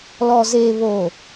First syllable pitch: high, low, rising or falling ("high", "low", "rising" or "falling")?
low